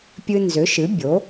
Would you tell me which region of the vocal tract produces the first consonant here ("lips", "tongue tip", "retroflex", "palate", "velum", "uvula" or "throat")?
lips